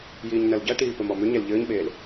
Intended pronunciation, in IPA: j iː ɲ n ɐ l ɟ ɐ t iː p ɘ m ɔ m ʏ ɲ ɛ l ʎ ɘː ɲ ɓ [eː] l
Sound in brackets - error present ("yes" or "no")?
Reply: no